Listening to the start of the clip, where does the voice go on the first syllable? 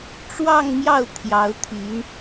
falling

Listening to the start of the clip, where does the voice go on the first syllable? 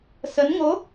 rising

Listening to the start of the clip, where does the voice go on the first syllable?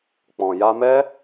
low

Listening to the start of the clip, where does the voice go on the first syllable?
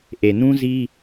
low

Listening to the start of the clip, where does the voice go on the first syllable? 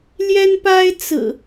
high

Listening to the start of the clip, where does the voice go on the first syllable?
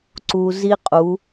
low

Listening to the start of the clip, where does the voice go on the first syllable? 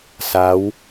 rising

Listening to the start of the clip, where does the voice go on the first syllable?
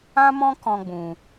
high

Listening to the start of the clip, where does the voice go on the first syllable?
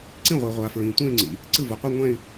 falling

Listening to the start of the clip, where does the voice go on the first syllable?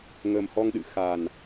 low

